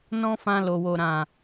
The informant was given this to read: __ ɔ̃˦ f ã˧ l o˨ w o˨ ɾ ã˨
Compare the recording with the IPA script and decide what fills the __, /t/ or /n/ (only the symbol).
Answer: n